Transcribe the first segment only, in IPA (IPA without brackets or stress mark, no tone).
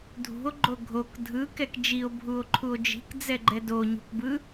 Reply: dʱ